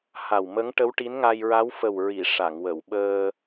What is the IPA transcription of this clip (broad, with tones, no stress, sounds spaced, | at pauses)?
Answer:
h a˨˩ w m ə˧˥ ŋ ʈ ə˧˥ w ʈ i˧˥ n ŋ a˧ j ɹ a˧˥ w f ə˨˩ w ɹ i˨˩˨ ʂ a˨˩˨ ŋ w ə˨˩˨ w ɓ əː˧